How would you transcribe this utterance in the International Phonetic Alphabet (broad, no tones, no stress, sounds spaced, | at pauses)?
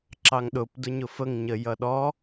ǁ ɑ ŋ ɗ ʊ p d ʊ ɲ ʊ f ə ŋ ɲ ə j ʌ ɗ ɔ